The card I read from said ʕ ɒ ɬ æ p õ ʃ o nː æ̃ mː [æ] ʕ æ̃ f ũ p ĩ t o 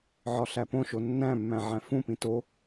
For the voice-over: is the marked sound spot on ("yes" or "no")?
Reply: no